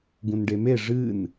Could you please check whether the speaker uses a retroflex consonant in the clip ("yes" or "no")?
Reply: yes